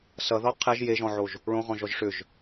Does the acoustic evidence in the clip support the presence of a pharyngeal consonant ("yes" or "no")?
yes